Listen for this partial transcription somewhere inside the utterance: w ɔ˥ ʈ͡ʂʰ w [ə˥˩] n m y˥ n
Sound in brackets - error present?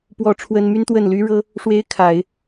yes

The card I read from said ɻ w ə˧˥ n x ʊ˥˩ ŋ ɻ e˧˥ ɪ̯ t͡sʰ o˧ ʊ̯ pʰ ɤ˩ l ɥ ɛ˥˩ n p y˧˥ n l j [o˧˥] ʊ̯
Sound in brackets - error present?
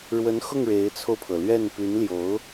no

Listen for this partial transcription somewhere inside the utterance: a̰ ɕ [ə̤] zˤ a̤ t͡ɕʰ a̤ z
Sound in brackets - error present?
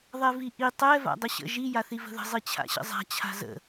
yes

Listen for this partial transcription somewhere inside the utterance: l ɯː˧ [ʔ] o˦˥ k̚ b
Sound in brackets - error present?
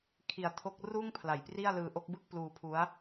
no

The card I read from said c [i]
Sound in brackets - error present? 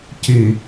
no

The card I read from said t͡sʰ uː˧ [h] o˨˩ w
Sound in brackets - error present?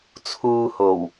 no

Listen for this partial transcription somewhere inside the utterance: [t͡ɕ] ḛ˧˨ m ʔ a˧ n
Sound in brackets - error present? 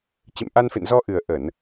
no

